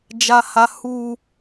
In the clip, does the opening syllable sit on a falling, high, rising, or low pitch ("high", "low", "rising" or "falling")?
high